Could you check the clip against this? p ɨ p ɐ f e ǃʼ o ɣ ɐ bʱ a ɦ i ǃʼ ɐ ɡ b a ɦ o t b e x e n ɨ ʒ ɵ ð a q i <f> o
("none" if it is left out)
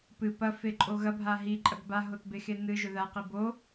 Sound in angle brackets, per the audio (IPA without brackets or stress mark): b